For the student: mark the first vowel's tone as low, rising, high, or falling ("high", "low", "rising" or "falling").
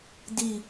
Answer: falling